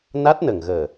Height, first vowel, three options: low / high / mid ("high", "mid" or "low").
low